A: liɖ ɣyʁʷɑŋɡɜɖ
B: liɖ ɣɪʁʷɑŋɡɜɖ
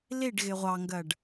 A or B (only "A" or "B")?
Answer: B